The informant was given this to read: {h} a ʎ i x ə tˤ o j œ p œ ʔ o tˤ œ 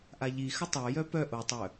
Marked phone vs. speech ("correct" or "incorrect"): incorrect